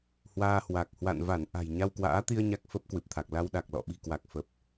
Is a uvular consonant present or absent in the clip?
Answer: absent